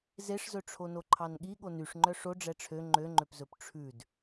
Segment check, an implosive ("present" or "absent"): present